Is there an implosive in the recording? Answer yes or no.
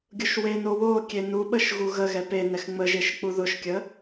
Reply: yes